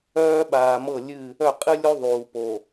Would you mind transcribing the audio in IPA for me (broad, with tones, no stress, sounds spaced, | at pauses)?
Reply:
œː˦ ɓ aː˨ m ɤ˦˨ lʲ ɨ˦˨ | œ˦˨ qʼ ɨ˦ lʲ o˦ ðˤ uː˨ p o˨